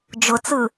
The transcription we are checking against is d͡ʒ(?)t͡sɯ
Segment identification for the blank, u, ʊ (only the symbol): ʊ